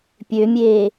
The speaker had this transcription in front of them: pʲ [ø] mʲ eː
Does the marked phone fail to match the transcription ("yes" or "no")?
no